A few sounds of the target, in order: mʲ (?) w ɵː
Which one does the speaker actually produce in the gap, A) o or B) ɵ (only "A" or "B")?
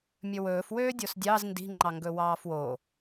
B